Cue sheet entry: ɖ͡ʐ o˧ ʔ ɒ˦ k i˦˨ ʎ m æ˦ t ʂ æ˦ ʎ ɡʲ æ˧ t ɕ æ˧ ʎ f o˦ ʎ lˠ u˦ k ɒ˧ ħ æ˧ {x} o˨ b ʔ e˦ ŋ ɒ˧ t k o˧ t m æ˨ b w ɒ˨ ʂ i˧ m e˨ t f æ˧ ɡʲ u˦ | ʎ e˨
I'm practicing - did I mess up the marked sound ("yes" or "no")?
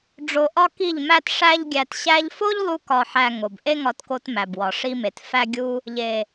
yes